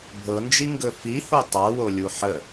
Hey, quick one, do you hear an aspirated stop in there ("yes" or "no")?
no